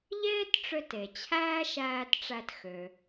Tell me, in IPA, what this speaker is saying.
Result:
ʎeː˥tʈ͡ʂø˧t e˩t͡ɕʰæː˥ʃæː˧tʈ͡ʂæ˧t xø˩

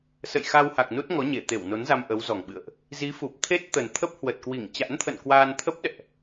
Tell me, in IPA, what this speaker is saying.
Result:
sə̰˧˨jxa˧wha˨˩k̚ nu˦˥t̚ŋɔ˨˦ ɲe˧˩t̪e˧˩wno˨˦nza˧m ʔə˨˦wzɔ˨˩ŋɓɨ̰˧˨ə̯ʔ | zi˨˦fu˨˩p̚ t̪ʰe˦˥t̚ t̪ə˨˩nt̪ʰə˦˥p̚hwə˨˩t̚ kwi˧˩ŋt͡ɕa̰˧˥n t̪ʰə̰˧˨n kwaː˧n t̪ʰə˦˥p̚ɗɛ̰˧˨ʔ

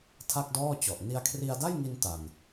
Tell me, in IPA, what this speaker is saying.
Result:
tʰa˥˩k̚dɔː˥˩t͡ɕɔ˨˩ʔ ni˧a̯kʰri˧a̯da˥˩jŋi˧n ta˨˩n

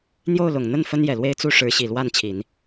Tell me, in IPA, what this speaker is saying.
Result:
n̪jo˥˩ʊ̯lʊ˨˩ŋn̪ə˥˩n fə˥njɛ˨˩lwe˥ɪ̯ t͡su˥˩ʂɻ̩˧˥ɕi˨˩ lwa˥˩nt͡ɕʰi˨˩˦n

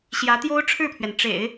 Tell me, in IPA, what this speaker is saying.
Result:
ɕjä˧˥t̪jo˥ʊ̯ʈ͡ʂʰɻ̩˥˩pʰɥɛ˩n ʈ͡ʂḛ˨˩˦ɪ̯

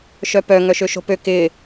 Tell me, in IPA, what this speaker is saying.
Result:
ʃœpœ ŋœʃøʃo̤pø kɪ

